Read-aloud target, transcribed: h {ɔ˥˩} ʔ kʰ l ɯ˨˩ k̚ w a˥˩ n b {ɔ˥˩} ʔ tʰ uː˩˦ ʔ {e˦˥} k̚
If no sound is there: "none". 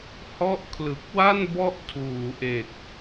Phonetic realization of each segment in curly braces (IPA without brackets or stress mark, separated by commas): ɔ˦˥, ɔ˦˥, e˨˩